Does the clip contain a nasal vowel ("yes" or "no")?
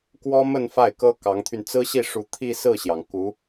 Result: no